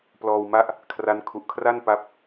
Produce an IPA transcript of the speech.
p l ɔː˧ w m a˦˥ ʔ | kʰ r a˦˥ n kʰ u˨˩ ʔ kʰ r a˥˩ n p a˦˥ p̚

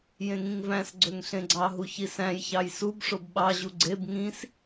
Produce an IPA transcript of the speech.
j ẽ ŋ ĩ ŋ v æ̃ s ɡ͡ǀ ø ŋ ɬ ẽ ɡ͡ǀ ɑ ɦ u ç i s æ̃ j ç ɑ j s u b ʂ o b ɓ ɑ ʑ u ɡ͡ǀ e b ŋ ĩ s

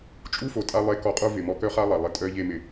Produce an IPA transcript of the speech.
t͡ʃʼ u˦ f o˨ tʼ a˧ lˠ e˦˨ k ɔ˧ qʼ o˦ v ɪ˨ m ɔ˧ k œ˦ χ a˦ lˠ a˨ lˠ ɪ˨ tʼ œ˧ ʎ e˧ m ɪ˨

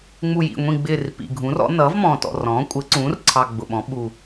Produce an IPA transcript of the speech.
ŋ͡m u˨˩ j ḭ˨˩ ŋʷ ĩ˨˩ ɡ͡b ɪː˨˩ r p ḭ˨˩ ɡʱ ũ˩˥ r ɔ̰˩˥ n ʌː˩˥ v m ɔ̃ː˨˩ t ɔ̰˨˩ r ɔ̃ː˩˥ kʷʼ ɪː˩˥ ǀ ũː˩˥ r ǀʰ ɑ˨˩ ɡ͡b ʊ˨˩ ɓ ɔ̃˩˥ ɓ u˨˩

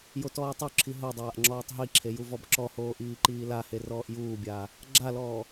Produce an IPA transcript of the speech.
j o t ɔː tˤ u ǁʰ i ɦ o dˤ aː ʔ ŋ͡ǁ ɔː tˤ ɦ i ǁʰ e j u v ɔ b ǁ ɔ h oː ʔ iː ǃ iː l a h e r ɔː ʔ j uː bʲ aː | ɡ͡ǁ a l ɔː

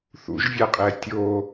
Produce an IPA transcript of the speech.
θ ṵ ʒ vʲ a qʼ ɛ tʲ o

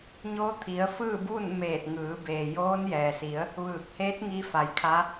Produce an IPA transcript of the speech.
ɲ oː˧˥ t̪ʰ i˩˧ ə̯ f ɯː˥˨ b uː˥˨ n m eː˧˩ t̚ ŋ ɯː˩˧ b eː˩ j oː˧˥ n j ɛː˩ s i˩˧ ə̯ | ʋ ɯː˧˩ k̚ h eː˧˥ t̚ ŋ i˧ f a˩˧ j kʰ a˧˥

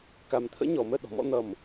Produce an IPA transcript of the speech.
k a˧ m t̪ʰ ə̰˥ ɲ ɔ˩˧ m ə˥˧ ɗ ɔ̤˩˧ m ɔ̰˧ n̪ ʌ˧˩ m

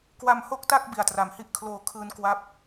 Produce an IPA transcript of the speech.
k w a˧ m h o˥˩ k̚ t a˥˩ k̚ b i˨˩ a̯ t r a˩˦ m h i˥˩ ʔ kʰ l oː˧ kʰ ɯː˧ n k w a˦˥ p̚

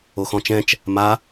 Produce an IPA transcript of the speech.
o x ɔ̃ t͡ʃ ɛ̃ t͡ʃ | m a

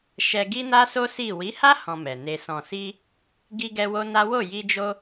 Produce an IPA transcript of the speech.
ʃ ɛ˧ ɡ i˦ n a˦ s o˦ s i˦˨ w i˨˦ h a˦ h ɔ̃˧ m ɛ˨ n e˧ s ɔ̃˨ s i˧ | ɡ i˧ ɡ ɛ˧ w o˦ n a˦ w o˦˨ j i˧ d͡ʒ o˧

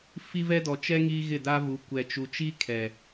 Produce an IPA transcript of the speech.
f i˦ v ɛ˦ d ɔ˨ t͡ʃ ɛ˦ ŋ iː˦ ɣ ɪ˦˨ d a˦ v u˨˦ kʷ ɛ˨ t͡ʃ u˨ t͡ʃ i˦ kʰ ɛ˨

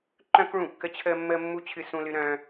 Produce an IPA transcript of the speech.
ǃ œ̃˥ k ɭ ũ˥˩ kː ə˥ t͡ɕʰ əː˥ mː əː˥ mː u˥ t͡ɕʰ ɨ˥ s ũ˥ l ɨ˥ ɾ œ̃ː˥

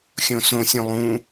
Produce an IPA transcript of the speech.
xʲ õ s õ sʲ õ lˠ ũ

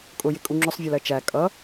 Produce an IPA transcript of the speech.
kʼ ʊ j ɪ kʼ u ŋ͡ǁ ʊ sˤ vʲ ɜ l ɜ t͡ʃ æ kʼ ʌ

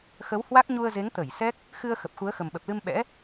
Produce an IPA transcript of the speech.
x ə˨˦ w h w a˦˥ k̚ ɲ u˧ ə̯ z e˨˦ ŋ t̪ ə˧˩ j s ɛ˦˥ k̚ | x ɨ˧ ə̯ x ə˨˩ p̚ x u˨˦ ə̯ x ə˨˩ m ɓ ə˨˩ p̚ l ɨ˧ m ɓ ɛ̰˧˥

